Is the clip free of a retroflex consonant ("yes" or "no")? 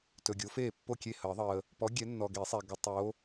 yes